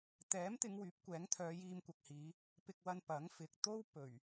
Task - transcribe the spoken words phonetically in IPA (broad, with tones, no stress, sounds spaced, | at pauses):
t̪ ɛː˨˥ m t̪ ɪ˨˧ ŋ w yː˨˥ p̚ kʷ ɛː˨˥ ŋ t̪ʰ œː˨˧ j iː˧ m kʷ ɐ˨ k̚ h iː˨˧ | p ɪ˧ k̚ w ɐ˧ n p ɐ˨˥ ŋ f ɪ˨ k̚ t̪ o˥ w p ɵ˨˩ ɥ